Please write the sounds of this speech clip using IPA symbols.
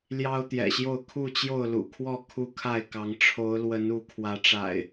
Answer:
l j ɑ˦ ʊ̯ t̪ j ɛ̰˨˩ ɕ j o˥˨ ʊ̯ kʰ u˥˨ t͡ɕ j o˥˨ ʊ̯ l ṵ˨˩ kʰ w ɔ˥˨ kʰ u˦ kʰ a˥˨ ɪ̯ k ɑ˨˦ ŋ ʈ͡ʂʰ o˨˦ ʊ̯ l w ə˨˦ n u˨˦ kʰ w ä˨˦ ʈ͡ʂ a̰˨˩ ɪ̯

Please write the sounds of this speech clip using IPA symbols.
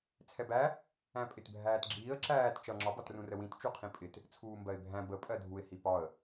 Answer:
t͡sʰ ɛ b æ | æ̃ pʼ ɪ t bʱ æː t ɡ͡ǁ iː ə̯ ǁ æː t t͡ʃ ʌ ŋ͡ǁ ɒ b ɒ t r ũ r ə w ĩ t t͡ʃ u qʰ ĩ pʼ ɪ t | t͡sʰ uː m b ɜ ɪ̯ bʱ æ̃ b ə pʼ ɜ dʱ u ɪ̯ h i p ɒ ə̯

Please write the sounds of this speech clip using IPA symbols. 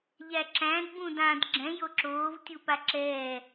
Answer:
ʎ æ ǁ æ̃ d b ũ d ã d ɡ͡ǁ ɛ̃ j o ǁ oː v tʲ u p a ǁ ɛː

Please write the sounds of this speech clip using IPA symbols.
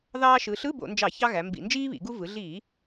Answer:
ð ɑː˧ ʃ ɯ˩˧ ɬ ɯ˧˥˧ b o̰˧˩˧ n d͡ʒ ɑ˧˩˧ ç ɑ˧ ɣ æ˩˧ m b ḭ˧˩˧ n d͡ʒ iː˥ β ḭ˩˧ ɡ u˧ v ɯ˩˧ ɮ iː˧˩˧

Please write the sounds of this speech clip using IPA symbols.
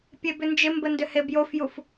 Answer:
pʲ e b ʏ n d͡ʒ ɪ m b ə n d ʏ h e b j o f j u f

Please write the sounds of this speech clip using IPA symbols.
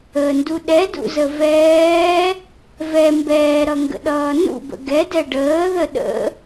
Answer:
ə n d u ɗ ɛ d ṵ z ə v ɛː | v ɛ m b ɛː ɾ ʌ ŋ ɡ ə̰ ɗ ʌː n ṵ b ə̰ ɡ ɛ d ɛ ɖ əː ð ə ɗ ə̰

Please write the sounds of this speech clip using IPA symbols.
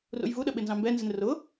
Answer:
r ṵ j v u ɗ ə ɓ ɪ n z ɑ̃ m b ɛ n z ɪ n r ʊ

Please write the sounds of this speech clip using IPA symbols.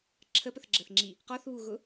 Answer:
ǁʰ ə p ə θ ɡ͡ǁ ə θ ŋ͡ǁ i | q ɔ θ β u ɣ ʊ

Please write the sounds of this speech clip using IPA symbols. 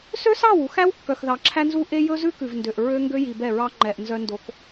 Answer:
s ø˦ s ɑ˦˨ w u˨ x æ˦ w kː œ˨ x ð ɑ˨ ǁʰ æ˦ n z u˦ ʔ e˦ j ɵ˦ z ʉ˦ k ʉ˨ v n d ø˨ ʔ ɹ ø˦ ŋ ɡ ø˦ j i˨ b ɛ˦˨ ɹ ɑ˦ ŋ͡ǃ ɛ˨ ʔ n z œ˦ n d o˦ k

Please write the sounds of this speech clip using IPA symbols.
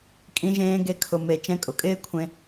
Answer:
kʼ ĩ˧ ʒ ẽː˧ ɡ e˧ kʰ ʊ˨ m e˨ t͡ʃ ɛ̃˧ kʼ ʊ˨ kʼ ɪː˦ kʷʰ ẽ˧

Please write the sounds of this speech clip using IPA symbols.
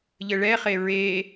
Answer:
ʎ ə ɭ ɛ χ e ɹ e

